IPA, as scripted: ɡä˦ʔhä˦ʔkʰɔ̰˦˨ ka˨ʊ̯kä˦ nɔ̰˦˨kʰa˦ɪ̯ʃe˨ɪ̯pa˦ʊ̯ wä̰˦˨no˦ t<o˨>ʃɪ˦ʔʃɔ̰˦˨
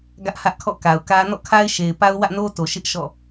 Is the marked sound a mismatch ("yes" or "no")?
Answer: no